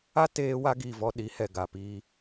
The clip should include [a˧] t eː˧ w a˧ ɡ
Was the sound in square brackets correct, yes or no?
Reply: no